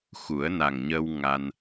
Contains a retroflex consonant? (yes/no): no